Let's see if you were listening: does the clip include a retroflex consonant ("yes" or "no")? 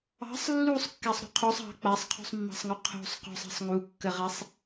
no